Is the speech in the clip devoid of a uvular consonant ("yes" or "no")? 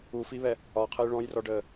no